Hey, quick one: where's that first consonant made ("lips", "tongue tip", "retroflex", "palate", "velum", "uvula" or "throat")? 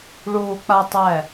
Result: retroflex